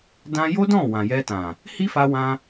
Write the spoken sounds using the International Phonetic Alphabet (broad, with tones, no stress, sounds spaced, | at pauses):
d ã˦ j o˦ d ɔ̃˦˨ w ã˨ j ɛ˧ t ã˨ | h i˦ f a˧ w ã˧